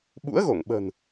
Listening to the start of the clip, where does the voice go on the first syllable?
rising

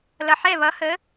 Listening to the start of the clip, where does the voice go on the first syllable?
low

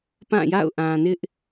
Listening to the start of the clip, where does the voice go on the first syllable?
falling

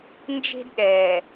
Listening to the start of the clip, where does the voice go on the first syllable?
high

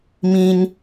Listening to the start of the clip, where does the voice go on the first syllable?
high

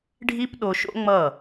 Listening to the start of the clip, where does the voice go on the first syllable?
high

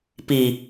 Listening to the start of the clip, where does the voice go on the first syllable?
low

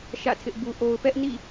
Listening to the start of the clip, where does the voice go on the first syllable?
falling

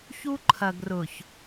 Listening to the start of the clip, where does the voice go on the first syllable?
high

